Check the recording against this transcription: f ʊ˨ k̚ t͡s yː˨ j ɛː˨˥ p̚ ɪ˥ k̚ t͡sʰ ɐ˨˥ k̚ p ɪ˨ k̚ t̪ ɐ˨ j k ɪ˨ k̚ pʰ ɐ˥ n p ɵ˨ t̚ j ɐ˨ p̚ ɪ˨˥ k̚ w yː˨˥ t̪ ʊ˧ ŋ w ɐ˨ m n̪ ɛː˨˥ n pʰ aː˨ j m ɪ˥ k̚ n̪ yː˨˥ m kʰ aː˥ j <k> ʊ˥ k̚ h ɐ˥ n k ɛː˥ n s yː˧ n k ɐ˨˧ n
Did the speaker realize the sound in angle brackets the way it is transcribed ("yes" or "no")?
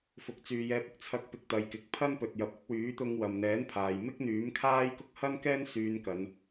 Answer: yes